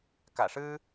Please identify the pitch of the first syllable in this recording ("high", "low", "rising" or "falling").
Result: low